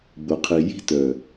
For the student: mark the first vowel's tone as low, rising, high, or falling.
low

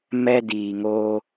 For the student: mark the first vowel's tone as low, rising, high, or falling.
high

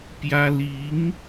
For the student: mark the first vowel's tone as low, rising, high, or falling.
high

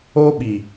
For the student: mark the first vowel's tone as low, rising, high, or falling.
high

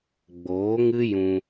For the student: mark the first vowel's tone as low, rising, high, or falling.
rising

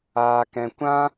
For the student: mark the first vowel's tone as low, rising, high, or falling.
low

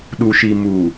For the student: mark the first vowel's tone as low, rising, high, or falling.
low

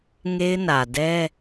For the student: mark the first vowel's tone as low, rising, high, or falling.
high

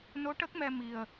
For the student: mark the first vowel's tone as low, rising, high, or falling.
rising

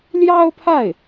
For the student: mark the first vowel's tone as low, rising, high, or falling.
high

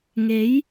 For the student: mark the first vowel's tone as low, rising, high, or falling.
rising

